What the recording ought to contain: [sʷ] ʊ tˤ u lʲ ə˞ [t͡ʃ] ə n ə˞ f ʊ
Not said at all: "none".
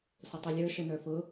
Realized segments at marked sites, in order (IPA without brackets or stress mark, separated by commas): s, ʃ